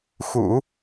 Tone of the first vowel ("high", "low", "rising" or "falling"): low